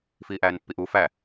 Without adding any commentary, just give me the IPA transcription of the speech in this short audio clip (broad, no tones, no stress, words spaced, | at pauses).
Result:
fiːʔæːnpːiʔu fæ